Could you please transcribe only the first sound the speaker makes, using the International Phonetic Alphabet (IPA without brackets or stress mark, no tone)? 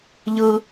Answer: ʎ